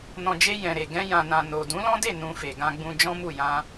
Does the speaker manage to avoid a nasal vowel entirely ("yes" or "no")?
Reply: no